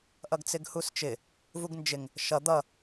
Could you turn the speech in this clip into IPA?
ʔ ʌ ɡ t͡s ɪ ɡ h u s t͡ʃ ɪ | v u ɡ n d͡ʒ ɪ ŋ | ʃ ʌ d̪ ʌ

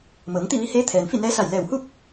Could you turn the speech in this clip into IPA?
m ɤː˩˧ ŋ t̪ i˥˨ ʋ i˧˥ h eː˧˥ t̪ʰ ɛː˩ n f i˥˨ n ɛː˧˥ s a˧˩ j l ɛː˧˩ w h u˥˨ k̚

